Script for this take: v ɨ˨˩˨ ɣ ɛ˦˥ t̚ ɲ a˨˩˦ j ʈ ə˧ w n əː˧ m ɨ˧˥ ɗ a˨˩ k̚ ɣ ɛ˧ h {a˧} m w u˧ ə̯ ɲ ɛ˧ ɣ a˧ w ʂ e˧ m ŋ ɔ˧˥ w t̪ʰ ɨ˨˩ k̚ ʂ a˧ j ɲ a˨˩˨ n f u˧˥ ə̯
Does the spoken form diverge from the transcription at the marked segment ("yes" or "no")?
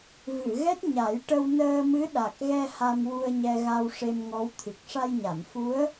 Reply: no